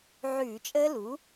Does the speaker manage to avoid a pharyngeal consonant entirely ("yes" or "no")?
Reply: no